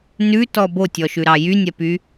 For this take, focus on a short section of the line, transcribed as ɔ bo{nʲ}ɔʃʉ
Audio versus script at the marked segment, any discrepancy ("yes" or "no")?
yes